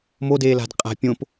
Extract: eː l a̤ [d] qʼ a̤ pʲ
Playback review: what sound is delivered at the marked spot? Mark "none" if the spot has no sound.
d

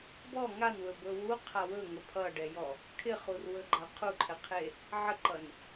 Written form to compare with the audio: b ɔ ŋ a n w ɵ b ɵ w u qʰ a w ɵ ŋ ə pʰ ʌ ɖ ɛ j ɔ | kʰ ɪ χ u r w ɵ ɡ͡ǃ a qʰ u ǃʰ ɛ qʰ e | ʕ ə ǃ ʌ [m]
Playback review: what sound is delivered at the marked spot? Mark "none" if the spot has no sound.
n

